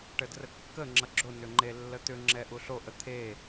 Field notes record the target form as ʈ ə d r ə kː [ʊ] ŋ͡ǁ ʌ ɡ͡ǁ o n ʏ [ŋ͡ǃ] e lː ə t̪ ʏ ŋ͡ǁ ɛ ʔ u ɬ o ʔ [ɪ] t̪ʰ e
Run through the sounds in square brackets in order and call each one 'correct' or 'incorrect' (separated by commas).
incorrect, correct, incorrect